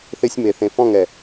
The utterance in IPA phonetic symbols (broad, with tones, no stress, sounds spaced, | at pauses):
θ ɪ˧ sʲ m e˨ θ ẽ˨ f ɔ̃˦˨ ŋ ɛ˨